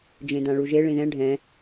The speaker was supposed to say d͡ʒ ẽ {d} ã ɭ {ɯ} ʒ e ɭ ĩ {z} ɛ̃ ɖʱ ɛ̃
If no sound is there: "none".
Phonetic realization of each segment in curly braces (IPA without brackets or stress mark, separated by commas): d, u, ð